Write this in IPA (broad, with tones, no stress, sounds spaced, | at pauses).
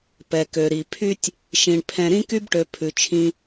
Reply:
p ɛ˧ k ø˧ ɾ i˧ pʰ y˥ tʲ | ʃ ĩ˧ ɳ pʰ ɛ̃˧ ɾ ĩ˥ k y˥ b ʈ ø˧ pʰ ʉ˧ t͡ʃʰ ĩ˥